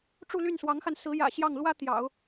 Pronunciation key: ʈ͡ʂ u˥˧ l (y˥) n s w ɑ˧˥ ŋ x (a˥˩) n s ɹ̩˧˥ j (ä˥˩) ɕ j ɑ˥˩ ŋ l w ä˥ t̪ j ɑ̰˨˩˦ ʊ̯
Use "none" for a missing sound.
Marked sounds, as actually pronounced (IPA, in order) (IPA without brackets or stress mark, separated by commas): y˥˩, a˧, ä̰˨˩